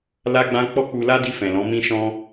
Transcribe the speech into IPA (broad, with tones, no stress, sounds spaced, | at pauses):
l a˦ ɡ͡b ã˦ k͡p ɔ˦ k͡p u˧ l a˦ d i˧ f ɛ̃˨ l ɔ̃˨˦ m ĩ˦ ʃ ɔ̃˦